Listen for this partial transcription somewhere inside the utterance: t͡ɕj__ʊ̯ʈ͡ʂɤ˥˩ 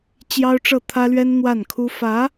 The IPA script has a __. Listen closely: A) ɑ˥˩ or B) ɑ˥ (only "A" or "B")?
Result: B